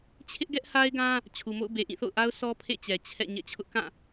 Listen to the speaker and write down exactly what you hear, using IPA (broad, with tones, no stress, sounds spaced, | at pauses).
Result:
t͡ɕʰ ɪ˦ ʔ ɡ ɛ˦ ʔ h a˦ ɪ̯ ɡ ã˦ | t͡ɕʰ u˨ m o̰˦˨ ʊ̯ b e˨ ʔ ĩ˦˨ θ o̰˦˨ ʊ̯ ʔ a˦ ʊ̯ s ɔ˦ pʰ ḛ˦˨ t͡ɕ ɛ˨ t͡ɕʰ ɛ̰˦˨ ɲ ɛ̰˦˨ t͡ɕʰ ʊ˦ ʔ k ã˦˨